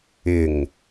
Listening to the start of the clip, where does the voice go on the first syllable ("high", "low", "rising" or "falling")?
low